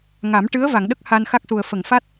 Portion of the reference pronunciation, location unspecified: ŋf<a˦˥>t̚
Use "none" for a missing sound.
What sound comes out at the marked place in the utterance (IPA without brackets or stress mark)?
a˦˥